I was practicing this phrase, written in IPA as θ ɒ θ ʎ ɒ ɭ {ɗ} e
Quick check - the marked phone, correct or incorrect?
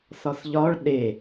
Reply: correct